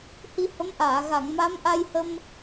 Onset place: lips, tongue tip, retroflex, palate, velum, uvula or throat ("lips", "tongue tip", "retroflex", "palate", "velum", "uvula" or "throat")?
throat